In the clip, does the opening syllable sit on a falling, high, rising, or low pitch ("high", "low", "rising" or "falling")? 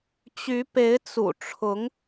rising